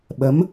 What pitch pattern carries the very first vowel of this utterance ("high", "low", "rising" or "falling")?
rising